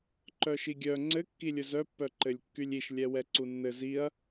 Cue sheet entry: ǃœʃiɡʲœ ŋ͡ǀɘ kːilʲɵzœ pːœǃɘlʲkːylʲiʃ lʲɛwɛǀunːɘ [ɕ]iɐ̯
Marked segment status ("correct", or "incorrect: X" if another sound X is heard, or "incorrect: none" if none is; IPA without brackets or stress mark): incorrect: z